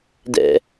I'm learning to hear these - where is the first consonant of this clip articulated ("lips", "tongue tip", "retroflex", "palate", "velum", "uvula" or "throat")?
tongue tip